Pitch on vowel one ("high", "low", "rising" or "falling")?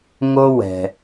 high